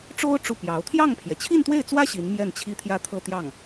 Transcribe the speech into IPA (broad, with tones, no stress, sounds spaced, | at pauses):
ʈ͡ʂ o˥ ʊ̯ ʈ͡ʂ u˥˩ p j ɑ˧˥ ʊ̯ t̪ʰ j ɑ˥˩ ŋ pʰ j ɛ˩ t͡ɕʰ i˥˧ n t̪ w e˥˩ ɪ̯ t͡s w ä˥ ɕ i˧˥ n m j ɛ˥˩ n t͡ɕʰ i˥ t̪ʰ j ä˥˧ t̪ʰ ɤ˥˧ t̪ j ɑ˥˩ ŋ